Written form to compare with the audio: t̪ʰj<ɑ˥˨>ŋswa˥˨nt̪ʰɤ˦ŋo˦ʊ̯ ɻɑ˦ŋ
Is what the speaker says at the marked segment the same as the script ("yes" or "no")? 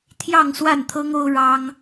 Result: yes